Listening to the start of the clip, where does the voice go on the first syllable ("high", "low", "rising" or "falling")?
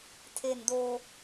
low